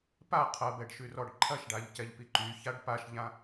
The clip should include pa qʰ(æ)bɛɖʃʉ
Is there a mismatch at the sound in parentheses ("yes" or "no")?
yes